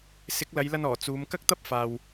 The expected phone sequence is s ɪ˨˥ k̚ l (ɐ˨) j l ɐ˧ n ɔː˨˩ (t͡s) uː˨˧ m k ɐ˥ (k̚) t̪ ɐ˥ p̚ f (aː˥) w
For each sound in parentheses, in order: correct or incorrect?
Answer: incorrect: ɐ˨˧, correct, correct, incorrect: aː˨

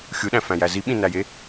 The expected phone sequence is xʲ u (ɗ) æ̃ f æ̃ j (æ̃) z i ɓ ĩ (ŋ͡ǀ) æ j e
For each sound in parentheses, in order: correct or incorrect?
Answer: correct, incorrect: æ, incorrect: n

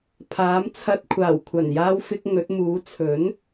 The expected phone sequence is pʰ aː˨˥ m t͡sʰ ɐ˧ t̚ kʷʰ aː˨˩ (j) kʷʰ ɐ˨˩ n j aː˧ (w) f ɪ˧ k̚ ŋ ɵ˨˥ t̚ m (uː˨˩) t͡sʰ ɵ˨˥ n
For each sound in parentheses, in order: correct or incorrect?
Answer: incorrect: w, correct, incorrect: uː˨˥

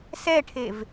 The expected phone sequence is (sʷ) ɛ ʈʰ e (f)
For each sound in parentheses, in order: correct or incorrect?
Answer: incorrect: s, incorrect: v

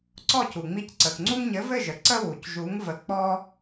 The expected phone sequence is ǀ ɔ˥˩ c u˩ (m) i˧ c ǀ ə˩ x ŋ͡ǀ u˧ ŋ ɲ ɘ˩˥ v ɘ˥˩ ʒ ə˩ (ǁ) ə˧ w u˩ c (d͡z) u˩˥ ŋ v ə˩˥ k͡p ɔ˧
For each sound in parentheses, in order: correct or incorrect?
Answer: incorrect: ŋ͡m, incorrect: ǀ, incorrect: ʒ

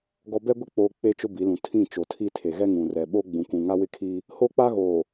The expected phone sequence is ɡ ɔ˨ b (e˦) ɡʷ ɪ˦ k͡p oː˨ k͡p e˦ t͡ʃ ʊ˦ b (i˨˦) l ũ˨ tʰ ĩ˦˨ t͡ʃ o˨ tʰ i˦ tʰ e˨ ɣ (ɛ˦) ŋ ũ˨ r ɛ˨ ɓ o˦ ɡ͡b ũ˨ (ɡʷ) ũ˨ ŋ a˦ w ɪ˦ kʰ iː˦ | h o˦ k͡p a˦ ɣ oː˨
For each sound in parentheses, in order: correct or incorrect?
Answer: incorrect: ɛ˦, correct, correct, incorrect: kʷ

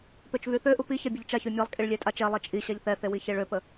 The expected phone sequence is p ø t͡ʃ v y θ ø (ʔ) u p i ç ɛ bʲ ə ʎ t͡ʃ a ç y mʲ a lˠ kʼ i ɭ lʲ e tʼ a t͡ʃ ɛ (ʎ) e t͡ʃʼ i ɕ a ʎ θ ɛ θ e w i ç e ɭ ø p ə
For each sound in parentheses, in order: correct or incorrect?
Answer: correct, incorrect: lˠ

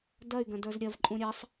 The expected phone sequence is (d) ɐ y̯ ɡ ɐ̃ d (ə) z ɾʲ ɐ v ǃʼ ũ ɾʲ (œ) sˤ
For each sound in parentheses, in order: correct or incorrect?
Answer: correct, incorrect: ə˞, incorrect: ɛ

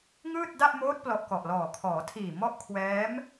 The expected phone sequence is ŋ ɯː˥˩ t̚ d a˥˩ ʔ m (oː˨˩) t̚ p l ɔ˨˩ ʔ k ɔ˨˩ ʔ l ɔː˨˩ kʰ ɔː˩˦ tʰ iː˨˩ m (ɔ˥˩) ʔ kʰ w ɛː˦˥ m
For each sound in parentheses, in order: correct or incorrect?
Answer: incorrect: oː˦˥, correct

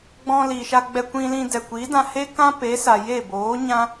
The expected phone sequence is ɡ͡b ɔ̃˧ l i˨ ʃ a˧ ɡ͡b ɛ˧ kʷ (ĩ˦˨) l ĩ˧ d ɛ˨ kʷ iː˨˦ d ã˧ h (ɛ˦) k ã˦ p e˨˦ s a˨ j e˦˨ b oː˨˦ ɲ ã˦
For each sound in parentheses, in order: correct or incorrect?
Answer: incorrect: ĩ˧, incorrect: e˦

